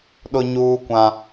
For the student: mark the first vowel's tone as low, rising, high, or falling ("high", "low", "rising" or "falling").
high